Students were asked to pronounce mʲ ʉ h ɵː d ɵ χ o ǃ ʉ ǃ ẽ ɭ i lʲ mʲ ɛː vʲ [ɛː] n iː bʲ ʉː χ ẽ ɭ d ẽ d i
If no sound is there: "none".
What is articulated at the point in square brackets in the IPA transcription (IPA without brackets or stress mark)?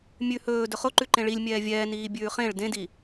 ɛː